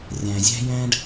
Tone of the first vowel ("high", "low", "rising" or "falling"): low